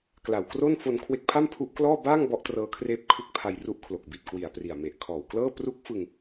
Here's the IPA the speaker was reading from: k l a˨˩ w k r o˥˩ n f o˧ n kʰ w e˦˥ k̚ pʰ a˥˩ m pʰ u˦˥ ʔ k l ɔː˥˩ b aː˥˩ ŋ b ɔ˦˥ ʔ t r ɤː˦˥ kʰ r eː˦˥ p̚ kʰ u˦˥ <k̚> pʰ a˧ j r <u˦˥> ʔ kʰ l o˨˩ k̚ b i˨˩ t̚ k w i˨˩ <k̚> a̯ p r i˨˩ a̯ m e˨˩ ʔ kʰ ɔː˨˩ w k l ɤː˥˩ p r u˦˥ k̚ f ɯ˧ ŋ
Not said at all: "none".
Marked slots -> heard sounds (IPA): k̚, u˦˥, none

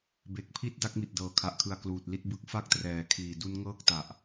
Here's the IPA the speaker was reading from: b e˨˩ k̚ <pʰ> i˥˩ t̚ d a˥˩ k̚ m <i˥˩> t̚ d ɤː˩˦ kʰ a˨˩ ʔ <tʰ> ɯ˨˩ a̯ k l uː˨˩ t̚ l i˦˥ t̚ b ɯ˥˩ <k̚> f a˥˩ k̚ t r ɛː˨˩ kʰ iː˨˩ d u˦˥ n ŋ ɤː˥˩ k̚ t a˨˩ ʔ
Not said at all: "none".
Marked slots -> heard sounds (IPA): pʰ, i˨˩, kʰ, k̚

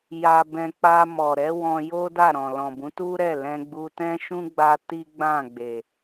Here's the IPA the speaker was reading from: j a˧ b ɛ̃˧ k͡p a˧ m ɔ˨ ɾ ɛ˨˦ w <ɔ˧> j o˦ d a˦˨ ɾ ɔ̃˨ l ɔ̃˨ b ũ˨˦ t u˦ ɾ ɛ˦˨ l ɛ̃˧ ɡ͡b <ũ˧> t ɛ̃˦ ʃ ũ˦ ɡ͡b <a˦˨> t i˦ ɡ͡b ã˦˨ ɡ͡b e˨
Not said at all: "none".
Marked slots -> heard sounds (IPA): ɔ̃˧, u˧, a˧

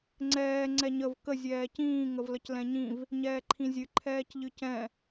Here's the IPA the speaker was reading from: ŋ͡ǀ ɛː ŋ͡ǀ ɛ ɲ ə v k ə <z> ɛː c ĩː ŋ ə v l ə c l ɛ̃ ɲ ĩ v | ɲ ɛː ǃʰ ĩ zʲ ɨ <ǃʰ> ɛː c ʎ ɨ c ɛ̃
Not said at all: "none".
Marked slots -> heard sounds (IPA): zʲ, ǃʰ

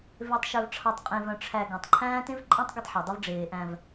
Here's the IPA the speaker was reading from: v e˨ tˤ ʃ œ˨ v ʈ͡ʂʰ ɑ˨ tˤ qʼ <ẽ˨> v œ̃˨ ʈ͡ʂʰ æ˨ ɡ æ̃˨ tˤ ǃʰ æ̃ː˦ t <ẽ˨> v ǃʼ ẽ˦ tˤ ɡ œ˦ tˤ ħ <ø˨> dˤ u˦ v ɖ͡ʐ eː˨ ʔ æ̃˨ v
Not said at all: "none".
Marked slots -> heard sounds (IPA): ẽ˨, ẽ˦, œ˨

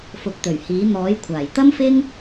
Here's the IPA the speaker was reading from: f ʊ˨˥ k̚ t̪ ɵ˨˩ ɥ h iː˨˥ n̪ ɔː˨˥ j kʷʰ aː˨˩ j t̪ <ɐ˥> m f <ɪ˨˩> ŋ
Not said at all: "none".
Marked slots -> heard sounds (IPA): ɐ˥, ɪ˥

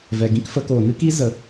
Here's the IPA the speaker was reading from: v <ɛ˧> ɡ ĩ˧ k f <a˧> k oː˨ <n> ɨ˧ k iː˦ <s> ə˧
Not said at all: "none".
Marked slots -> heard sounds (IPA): ɛ˨, ə˧, n, z

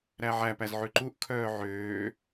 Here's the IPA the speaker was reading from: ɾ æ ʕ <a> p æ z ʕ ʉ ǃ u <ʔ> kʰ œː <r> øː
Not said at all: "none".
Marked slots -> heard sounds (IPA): æ, ʔ, ʕ

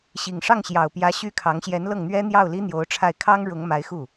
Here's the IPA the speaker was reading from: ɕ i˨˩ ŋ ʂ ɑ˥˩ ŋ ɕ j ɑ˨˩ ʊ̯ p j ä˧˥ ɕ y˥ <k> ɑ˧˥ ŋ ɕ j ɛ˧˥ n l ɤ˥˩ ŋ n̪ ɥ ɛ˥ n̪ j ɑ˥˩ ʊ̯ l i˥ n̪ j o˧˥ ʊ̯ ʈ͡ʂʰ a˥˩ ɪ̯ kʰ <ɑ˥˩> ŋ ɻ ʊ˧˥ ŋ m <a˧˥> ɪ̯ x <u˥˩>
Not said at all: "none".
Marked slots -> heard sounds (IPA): kʰ, ɑ˥, a˧˥, u˥˩

